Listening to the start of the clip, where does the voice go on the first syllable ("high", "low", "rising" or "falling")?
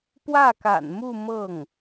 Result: falling